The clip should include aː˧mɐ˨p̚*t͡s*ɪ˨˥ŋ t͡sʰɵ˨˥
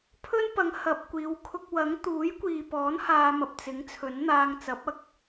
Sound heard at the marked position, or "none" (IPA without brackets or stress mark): t͡s